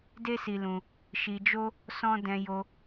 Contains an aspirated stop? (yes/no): no